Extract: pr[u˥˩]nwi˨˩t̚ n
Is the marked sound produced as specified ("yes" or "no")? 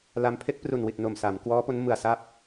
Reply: no